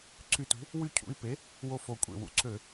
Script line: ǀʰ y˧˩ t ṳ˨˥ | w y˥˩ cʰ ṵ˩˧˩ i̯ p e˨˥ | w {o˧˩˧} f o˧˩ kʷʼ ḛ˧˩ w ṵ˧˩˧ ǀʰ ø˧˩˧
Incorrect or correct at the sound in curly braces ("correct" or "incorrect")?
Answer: incorrect